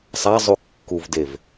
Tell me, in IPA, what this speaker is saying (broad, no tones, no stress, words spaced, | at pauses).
sˤazˤu kːuvdev